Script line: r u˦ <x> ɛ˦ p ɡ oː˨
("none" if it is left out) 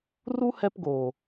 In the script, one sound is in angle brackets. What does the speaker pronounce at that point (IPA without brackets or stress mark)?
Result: h